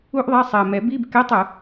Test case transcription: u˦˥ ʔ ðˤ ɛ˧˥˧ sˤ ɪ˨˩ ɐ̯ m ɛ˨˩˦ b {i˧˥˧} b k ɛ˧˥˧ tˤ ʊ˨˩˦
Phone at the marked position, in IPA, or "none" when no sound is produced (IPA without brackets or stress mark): i˧˥˧